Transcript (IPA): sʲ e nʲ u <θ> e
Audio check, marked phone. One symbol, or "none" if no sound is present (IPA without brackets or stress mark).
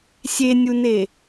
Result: n